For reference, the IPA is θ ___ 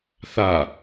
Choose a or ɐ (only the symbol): a